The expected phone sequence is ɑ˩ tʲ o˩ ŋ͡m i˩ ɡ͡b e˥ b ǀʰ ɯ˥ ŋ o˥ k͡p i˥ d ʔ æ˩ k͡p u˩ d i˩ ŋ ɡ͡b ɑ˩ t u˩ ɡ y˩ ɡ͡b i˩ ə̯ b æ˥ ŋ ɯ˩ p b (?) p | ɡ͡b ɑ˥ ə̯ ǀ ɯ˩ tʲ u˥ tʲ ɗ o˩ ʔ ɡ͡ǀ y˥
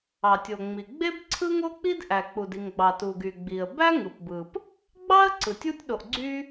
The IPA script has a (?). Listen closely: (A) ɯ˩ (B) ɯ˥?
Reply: A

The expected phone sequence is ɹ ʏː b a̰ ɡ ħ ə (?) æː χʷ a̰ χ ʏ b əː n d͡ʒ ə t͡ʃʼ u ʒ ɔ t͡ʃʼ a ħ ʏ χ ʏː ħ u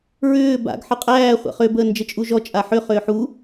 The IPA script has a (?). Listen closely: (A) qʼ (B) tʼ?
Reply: A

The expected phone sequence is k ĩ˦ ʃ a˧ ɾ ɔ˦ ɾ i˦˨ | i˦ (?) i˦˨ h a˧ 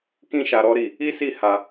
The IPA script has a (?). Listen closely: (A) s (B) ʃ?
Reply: A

